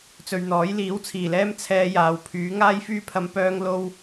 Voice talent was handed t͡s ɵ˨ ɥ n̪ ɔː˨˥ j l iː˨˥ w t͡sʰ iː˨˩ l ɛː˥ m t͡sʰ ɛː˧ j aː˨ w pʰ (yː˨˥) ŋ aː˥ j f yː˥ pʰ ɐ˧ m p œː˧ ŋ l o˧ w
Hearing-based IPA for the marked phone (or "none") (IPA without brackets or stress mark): yː˨˥